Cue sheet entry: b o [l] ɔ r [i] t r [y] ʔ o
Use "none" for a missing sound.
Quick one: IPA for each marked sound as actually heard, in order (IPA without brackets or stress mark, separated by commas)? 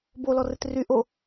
l, ɪ, y